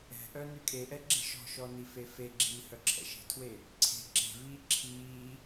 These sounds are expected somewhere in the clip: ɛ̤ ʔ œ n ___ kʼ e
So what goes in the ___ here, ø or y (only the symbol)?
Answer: y